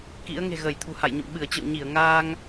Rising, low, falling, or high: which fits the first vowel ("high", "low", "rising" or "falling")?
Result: rising